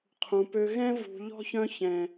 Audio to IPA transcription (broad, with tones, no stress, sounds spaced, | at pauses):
qʰ ũ˨ p ø˧ ɣ ɛ̃˦ v ṳ˨ ʎ ɔ̤˧ ç œ̃˧ ç ɛ̃˨